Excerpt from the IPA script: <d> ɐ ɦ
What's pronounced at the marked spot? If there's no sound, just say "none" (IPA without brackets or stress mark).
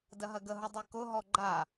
d